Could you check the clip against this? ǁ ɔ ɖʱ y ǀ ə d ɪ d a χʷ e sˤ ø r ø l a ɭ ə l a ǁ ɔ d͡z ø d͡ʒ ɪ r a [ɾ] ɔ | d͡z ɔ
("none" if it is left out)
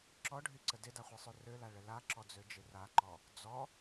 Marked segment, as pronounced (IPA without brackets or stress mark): ǃ